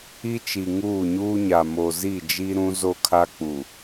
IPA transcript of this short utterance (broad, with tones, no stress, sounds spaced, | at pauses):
i˦ t͡ʃ i˨ ŋ uː˦˨ ɲ uː˦ ɲ a˨ m o˨ z i˦˨ d͡ʒ i˦ ɾ ũ˦ z o˦ kʰ a˦ k͡p u˨